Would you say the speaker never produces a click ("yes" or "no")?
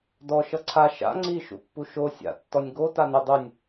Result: no